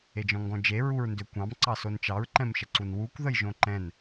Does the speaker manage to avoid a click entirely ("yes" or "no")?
no